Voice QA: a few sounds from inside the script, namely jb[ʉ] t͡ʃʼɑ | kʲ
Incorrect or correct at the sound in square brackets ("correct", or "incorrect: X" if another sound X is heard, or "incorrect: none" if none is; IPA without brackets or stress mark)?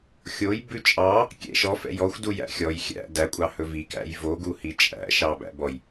correct